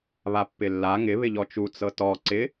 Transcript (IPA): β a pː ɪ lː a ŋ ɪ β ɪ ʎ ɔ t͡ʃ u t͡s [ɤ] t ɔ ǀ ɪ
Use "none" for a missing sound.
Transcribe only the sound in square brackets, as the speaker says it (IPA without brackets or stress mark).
ɤ